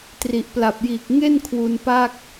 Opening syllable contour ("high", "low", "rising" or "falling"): low